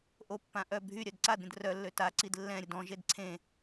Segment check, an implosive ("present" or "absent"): absent